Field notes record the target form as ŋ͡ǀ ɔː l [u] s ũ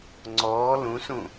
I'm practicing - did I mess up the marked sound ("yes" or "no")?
yes